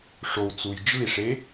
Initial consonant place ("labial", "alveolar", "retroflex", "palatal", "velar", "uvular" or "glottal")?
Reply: retroflex